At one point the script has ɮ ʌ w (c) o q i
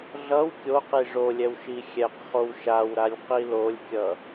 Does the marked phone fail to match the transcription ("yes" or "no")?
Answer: yes